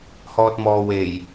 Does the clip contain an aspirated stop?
no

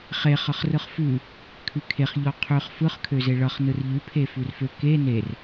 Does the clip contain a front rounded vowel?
yes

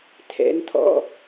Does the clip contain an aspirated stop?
yes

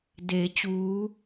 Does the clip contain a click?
no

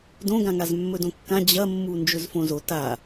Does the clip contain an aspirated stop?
no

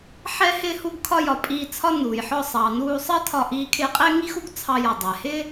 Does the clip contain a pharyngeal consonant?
yes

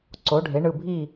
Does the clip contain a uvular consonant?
no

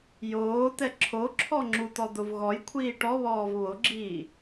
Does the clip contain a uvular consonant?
no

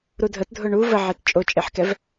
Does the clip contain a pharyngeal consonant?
yes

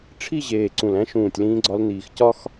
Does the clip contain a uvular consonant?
no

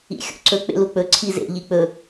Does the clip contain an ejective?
no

